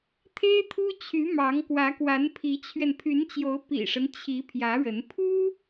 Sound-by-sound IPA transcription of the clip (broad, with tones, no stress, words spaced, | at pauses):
t̪ʰe˥ɪ̯t̪ʰu˥t͡ɕʰy˧˥ mɑ˧˥ŋ kwä˧˥kwa˧˥npʰi˧˥t͡ɕʰɥɛ˧n pʰy˧˥nt͡ɕjo˧˥ʊ̯ pḭ˨˩ʂə˦n t͡ɕʰi˧˥ pʰjä˧˥ɻə˧˥n pʰu˥